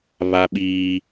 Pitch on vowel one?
high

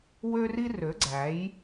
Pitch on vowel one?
high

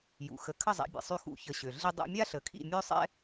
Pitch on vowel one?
low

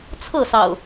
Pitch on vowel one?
falling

